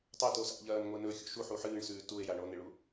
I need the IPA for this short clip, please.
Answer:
tˤ ɐ t o s a̰ ʎ ɐː n ŋʷ e n ɵ xʲ o̰ ʃ u ħ u ħ ɨː ɳ s ʉː t u e̯ j a ɳ o n e ɭ u

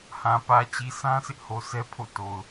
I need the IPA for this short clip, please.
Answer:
h ã˨ p ä˨ t͡ɕ i˨ s ã˦ s ɪ˦ ʔ h o˨ s ɛ˦ pʰ o̰˦˨ t o˨ ʊ̯

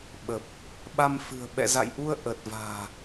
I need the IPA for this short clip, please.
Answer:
ɓ ə˨˩ p̚ | ɓ a˧ m f ɨ̤˨˩ ə̯ ɓ ɛ̰˧˨ z a̰˧˨ j ʔ u˧ ə̯ ʔ ə˨˩ t̚ v a̤ː˨˩

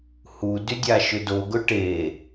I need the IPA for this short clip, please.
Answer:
h u d y dʲ a ʃ ʏ d o ɡ ʊ ʈ e

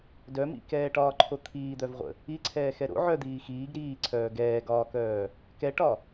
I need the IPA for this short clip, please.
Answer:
d œ m ḭ k ɛː ʈ ɒː ǃʰ o t̪ʰ iː d̪ œ v ʁʷ ə̰ | i ǀʰ ɛː x ɛ ɾ o̰ ʕ œ d̪ iː x iː ɡ ɾ iː ǀʰ œː ɡ ɛː ɡ ɒː k œː | k ɛ ʈ ɒ

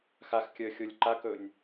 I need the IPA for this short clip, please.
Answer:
x a x kʲ əː xʲ o lʲ ǃ a k ɵ nʲ

